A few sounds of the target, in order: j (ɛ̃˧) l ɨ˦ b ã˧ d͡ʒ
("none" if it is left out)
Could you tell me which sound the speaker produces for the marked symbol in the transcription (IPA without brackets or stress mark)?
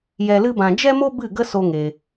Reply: ɛ˧